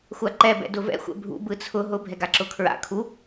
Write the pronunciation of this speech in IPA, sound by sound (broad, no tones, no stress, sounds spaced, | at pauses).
xʷ a ǃ ɛ b ɛ̰ d ʊ v ɛ̰ xʷ ɛ̰ bʱ ṵ b ɯ t͡sʰ ʊ ɦ ʊ bʱ ɛ ɡ a ǁ ʊ kʰ ɹ a̰ kʰ u